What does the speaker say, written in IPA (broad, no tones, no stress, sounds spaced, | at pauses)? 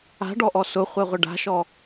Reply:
a̤ ɖ ɔ ʔ ɔ s ʊ χʷ ɛ ʁʷ ɪ ɖ a̤ ʃ ɔ